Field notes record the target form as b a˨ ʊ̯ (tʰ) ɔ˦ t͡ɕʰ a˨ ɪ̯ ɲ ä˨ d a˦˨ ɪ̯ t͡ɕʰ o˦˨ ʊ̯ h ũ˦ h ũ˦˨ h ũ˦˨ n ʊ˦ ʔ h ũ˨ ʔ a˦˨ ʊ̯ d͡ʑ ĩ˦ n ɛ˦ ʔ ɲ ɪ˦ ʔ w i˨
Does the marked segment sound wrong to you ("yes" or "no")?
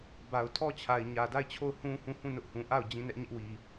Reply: no